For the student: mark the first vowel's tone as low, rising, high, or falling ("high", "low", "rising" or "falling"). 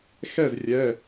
falling